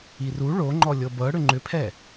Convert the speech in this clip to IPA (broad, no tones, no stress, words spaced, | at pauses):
iru ɭoŋ͡ǃɔ lʲɤbɤ ɽʏŋ͡ǃʏpʰɛ